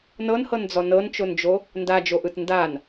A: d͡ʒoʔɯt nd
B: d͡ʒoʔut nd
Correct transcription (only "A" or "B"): A